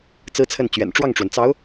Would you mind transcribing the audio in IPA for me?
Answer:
t͡s ɹ̩˥ t͡sʰ ə˥˩ n t͡ɕ ɥ ɛ̰˨˩ n ʈ͡ʂ w ɑ˥˩ ŋ ʈ͡ʂ w ə˩ n t͡s ɑ˧˥ ʊ̯

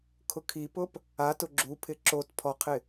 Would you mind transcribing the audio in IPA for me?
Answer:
kʰ ʊ kʰ i p ʊ p | a t ʊ ɡ͡ǁ u pʰ ɪ ǁ o t pʰ ɔ qʰ ɪ

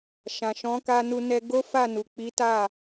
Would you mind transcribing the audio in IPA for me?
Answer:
ʃ ã˨ ʃ ɔ̃˨˦ k a˧ n u˧ n ɛ˧ ɡ o˦ f a˦˨ n u˨ k͡p i˨˦ t a˦˨

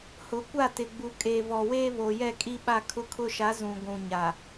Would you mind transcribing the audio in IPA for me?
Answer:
h ʊ˨˦ kʷ a˦˨ t ɪ˨ ɡ͡b u˨ kʼ e˨ v ɔ˨ w eː˦ β o˨ j ɛ˦˨ kʼ i˦ ɓ a˦ kʰ ʊ˦ kʰ ʊ˦ ʃ a˨˦ z ũ˨ ɡʷ ũ˨ ɲ a˨

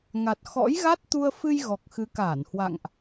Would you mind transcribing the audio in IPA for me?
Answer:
ŋ a˨˩ t̚ x ɔ̰˧˥ j ɣ a˦˥ t̚ t̪ u˧ ə̯ f ɨ˧ j ɣ ɔ˨˩ k̚ x ɨ˨˦ k aː˧˩ n h w a̰˧˨ ŋ ʔ

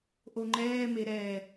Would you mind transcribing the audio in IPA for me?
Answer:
ʔ o ŋ͡ǃ ɛː m e ɾ ɛ

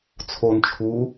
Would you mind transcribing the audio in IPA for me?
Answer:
t͡sʰ o n t͡ʃʰ u

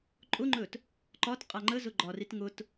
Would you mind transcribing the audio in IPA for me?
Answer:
ǃʼ ʊ ŋ͡ǃ ɵ t | ǃ ɒ t qʼ a ŋ͡ǃ ə z ʊ ɡ͡ǃ ɒ r i t ŋ ʊ t

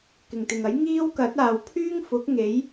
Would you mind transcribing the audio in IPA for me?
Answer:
k ɪ˨˩ ŋ t̪ ɪ˨˩ ŋ ɐ˨˥ j ŋ iː˥ w k ɐ˨˥ t̚ aː˨ w pʰ yː˥ ŋ f ʊ˨˥ k̚ ŋ e˨˥ j

